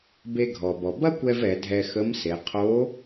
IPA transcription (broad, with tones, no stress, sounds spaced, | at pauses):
b e˧ ɡʱ ɔ˩ b ɔ˩ b ɐ˥ kʷ ɛ˧ v ɛ˩˧ dʱ ɛ˧ x ə˧˥ m s e˩˧ qʰ o˧˥